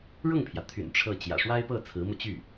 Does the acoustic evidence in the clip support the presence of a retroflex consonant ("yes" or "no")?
yes